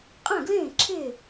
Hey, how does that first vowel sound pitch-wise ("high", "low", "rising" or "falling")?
falling